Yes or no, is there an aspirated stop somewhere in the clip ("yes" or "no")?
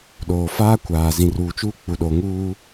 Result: no